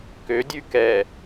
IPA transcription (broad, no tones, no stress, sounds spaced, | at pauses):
k ø dʲ ʉ k ɛ